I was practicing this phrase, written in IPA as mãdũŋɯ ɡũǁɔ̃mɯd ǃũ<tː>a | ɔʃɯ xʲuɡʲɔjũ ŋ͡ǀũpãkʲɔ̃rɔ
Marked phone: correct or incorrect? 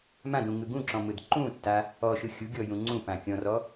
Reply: correct